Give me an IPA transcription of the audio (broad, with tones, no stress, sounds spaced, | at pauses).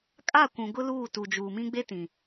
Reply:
kʼ a˦˨ kʷ ũ˨ ɡ ʊ˦ l uː˦˨ t u˨ d͡ʒ uː˨ m ĩ˦ ɡ͡b e˦ t ĩ˨